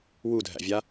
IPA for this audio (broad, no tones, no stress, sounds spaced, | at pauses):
w u dʱ æ̰ vʲ a